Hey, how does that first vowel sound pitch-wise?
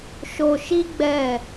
low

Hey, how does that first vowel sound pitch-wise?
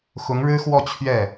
rising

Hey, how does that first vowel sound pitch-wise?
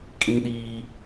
high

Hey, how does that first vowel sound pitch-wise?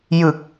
low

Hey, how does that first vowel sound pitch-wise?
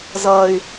high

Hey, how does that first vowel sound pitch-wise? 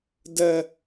high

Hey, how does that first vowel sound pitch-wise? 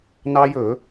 high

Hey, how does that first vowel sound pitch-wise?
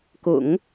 low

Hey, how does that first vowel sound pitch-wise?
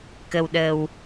low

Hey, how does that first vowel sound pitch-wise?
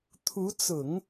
rising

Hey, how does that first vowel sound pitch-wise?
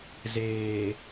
low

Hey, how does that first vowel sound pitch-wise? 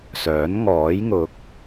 rising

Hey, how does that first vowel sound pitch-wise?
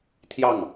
falling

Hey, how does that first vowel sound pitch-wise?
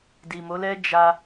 low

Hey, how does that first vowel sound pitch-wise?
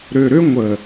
low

